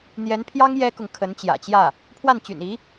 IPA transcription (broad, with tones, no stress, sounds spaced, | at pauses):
n̪ j ɛ˧˥ n pʰ j ɑ˥ ŋ j ɛ˥ k ʊ˨ ŋ kʰ ə˧˥ n t͡ɕ j ä̰˨˩ t͡ɕ j ä˥˩ | pʰ w a˥˩ n t͡ɕ y̰˨˩ n i˧˥